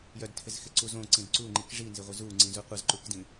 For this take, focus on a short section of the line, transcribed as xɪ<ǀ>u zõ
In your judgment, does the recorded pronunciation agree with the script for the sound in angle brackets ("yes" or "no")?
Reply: yes